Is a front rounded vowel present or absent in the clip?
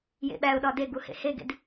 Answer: absent